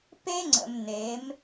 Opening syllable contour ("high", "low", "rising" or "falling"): high